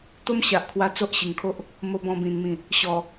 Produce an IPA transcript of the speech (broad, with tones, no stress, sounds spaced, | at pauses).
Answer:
t̪ o˦ m ɕ a˨ ʔ kʰ w a˧ t͡s o˦ ʔ ɕ i˨˩ ŋ kʰ o˦ ʔ | m o˧ b ɔ̃˧ b ĩ˨˩ n m ĩ˨˩ | ɕ ɔ˨˩